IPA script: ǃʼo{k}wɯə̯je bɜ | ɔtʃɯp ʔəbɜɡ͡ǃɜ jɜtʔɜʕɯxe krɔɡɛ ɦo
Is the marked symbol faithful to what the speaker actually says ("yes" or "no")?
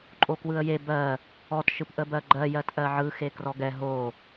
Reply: yes